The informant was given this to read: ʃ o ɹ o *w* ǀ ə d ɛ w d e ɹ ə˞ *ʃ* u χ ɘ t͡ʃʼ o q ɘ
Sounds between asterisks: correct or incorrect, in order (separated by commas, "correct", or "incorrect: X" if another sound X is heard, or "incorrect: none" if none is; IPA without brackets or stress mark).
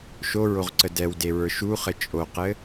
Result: incorrect: ʁ, correct